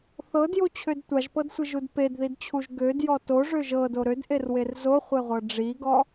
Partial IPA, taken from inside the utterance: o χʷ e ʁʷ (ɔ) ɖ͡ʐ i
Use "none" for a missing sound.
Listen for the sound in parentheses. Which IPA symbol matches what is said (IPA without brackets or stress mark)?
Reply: ɤ